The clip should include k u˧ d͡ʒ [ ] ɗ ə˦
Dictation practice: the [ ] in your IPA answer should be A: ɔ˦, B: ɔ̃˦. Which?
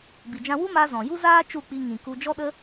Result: A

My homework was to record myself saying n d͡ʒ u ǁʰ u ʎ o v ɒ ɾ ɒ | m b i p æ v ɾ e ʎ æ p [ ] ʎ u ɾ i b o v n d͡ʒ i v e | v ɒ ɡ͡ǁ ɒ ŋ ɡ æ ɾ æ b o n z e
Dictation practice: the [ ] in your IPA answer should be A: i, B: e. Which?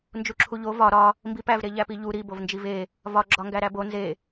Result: A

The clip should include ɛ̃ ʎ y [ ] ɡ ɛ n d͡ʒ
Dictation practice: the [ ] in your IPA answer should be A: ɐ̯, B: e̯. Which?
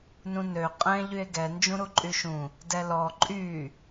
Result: B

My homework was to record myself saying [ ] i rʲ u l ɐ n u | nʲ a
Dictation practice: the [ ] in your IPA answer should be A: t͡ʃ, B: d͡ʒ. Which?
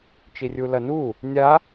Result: A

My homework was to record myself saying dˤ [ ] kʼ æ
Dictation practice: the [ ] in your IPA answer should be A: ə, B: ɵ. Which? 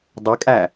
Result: B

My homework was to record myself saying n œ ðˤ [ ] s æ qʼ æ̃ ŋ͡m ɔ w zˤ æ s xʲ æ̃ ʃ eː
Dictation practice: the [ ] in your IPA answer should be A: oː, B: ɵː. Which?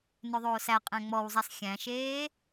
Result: A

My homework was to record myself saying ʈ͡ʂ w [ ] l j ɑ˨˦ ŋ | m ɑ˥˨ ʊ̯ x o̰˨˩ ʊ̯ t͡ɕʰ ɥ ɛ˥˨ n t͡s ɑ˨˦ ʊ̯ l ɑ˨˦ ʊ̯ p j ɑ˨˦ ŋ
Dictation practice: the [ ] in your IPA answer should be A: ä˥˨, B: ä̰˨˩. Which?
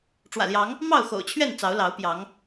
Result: B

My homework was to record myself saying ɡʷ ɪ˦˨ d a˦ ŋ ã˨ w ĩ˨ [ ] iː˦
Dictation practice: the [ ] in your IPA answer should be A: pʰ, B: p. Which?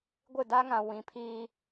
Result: A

